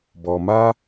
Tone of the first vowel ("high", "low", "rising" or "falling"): low